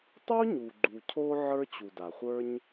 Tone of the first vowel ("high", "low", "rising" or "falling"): high